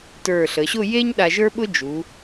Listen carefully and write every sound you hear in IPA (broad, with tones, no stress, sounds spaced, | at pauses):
t ə˞˧˩ ɬ ə˩˧ ɕ ʊ˥˧ j e˥ ɲ ɗ a˧ ʒ ə˞˥ ɓ ʊ˥ d͡ʒ u˩˧